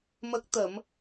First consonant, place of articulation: labial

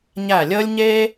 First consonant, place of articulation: palatal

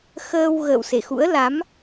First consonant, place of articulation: velar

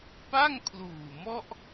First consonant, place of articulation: labial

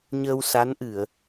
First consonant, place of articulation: palatal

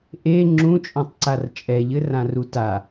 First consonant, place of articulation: glottal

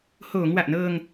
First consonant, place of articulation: glottal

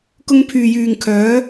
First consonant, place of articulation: velar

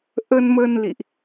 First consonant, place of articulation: glottal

